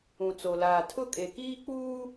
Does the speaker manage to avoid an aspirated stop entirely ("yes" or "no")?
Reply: no